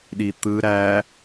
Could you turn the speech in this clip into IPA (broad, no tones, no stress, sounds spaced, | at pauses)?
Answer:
ɗ i t̪ ɯ ɾ æ